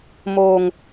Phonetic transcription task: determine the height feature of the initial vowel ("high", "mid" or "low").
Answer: mid